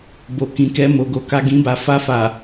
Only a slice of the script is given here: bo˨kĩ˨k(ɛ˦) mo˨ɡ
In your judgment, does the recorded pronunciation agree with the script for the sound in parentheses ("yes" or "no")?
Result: no